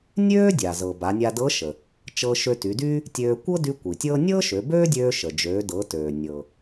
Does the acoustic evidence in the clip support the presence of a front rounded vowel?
yes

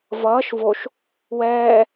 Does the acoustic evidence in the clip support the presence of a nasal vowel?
no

